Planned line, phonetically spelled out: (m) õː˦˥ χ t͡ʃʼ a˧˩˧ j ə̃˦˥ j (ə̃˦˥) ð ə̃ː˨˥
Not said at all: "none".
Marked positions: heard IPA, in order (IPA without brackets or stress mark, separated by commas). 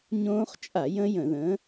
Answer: ɲ, ə̃˧˩˧